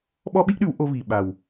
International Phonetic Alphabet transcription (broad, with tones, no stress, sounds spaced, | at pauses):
ɓ ɔ˦ ɓ i˦ ʔ ɗ ʉ˨˦ w ʔ o˧ v i˨ ɓ a˨ w